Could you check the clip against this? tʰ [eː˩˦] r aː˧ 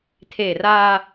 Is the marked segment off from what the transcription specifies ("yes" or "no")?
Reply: yes